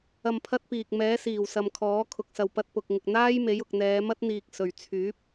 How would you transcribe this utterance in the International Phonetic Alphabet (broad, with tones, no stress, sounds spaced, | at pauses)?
ɐ˧ m pʰ ɐ˥ t̚ p iː˨ k̚ m ɛː˨˥ s iː˨˩ w s ɐ˨ m kʰ ɔː˨˥ kʰ ʊ˨ k̚ s ɐ˨ w p ɐ˧ t̚ p ʊ˨ k̚ ŋ ɪ˨ k̚ n̪ aː˥ j m e˨˥ j ʊ˨ k̚ n̪ ɛː˨˧ m ɐ˥ t̚ n̪ iː˧ k̚ s ɵ˨ ɥ t͡sʰ yː˨˥ p̚